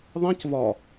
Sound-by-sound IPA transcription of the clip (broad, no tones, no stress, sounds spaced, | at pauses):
ðˤ ĩ c v ɒ